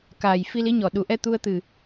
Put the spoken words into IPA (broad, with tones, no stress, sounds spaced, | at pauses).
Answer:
k aː˨˩ j f i˧ l i˧˥ ɲ ɔ˨˩ ɗ u˨˩˦ ʔ ɛ˧ t̪ u˧ ə̯ t̪ ɨ˨˩